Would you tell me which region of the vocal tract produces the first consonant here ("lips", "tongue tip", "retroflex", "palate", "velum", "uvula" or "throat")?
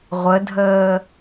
uvula